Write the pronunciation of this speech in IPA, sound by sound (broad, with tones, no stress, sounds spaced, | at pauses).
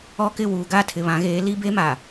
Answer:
ɔ˦ k ɪ˦˨ w uː˨ ɡ a˦˨ tʰ ɪ˨ β ã˨˦ ɣ eː˨˦ l i˦ b e˦ m a˨